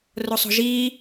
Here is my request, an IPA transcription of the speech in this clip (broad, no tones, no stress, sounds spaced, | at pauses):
r o sˤ o̤ ʒ iː